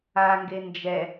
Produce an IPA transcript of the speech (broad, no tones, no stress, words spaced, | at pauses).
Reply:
aŋɡe nd͡ʒɛ